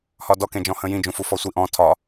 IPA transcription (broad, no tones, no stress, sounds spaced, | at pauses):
h ɒ d ɔ k ẽ d͡ʒ ɔ̃ h ə̃ j ĩ d͡ʒ ũ f u f ɔ sʷ i ʔ ɔ̃ tʰ ɒ